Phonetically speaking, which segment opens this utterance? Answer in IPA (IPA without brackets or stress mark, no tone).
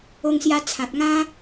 o